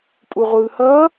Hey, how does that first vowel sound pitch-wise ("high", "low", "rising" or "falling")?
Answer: low